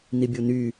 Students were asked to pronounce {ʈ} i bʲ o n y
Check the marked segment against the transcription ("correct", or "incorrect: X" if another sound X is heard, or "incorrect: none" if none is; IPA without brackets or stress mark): incorrect: n